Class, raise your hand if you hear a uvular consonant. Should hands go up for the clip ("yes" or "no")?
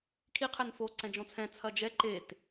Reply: yes